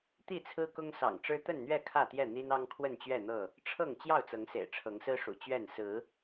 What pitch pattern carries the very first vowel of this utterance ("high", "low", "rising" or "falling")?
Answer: falling